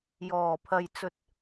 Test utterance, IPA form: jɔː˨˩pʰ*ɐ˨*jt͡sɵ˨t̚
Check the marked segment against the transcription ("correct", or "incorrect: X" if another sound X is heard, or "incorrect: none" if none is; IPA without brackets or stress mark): correct